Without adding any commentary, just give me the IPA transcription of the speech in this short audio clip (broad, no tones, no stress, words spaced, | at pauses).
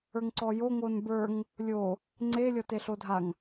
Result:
ə˞ŋǀɔjo ŋonbə˞ŋ | lʲo | ŋ͡ǀe lʲɔteɬodʱaŋ